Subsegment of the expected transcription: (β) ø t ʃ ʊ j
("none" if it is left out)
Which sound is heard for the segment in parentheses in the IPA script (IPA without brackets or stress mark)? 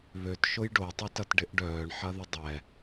β